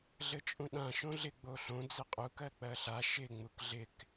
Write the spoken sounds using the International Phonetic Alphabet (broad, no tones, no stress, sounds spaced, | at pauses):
ɮ ɘ t͡ʃʼ ũ ɗ ã ʃ õ ɮ ɪ ɡ͡b o ɬ õ d͡z ɪ qʼ u k ɜ k͡p ɜ ɬ a ʃ ɪ ŋ͡m u k ɮ ɪ k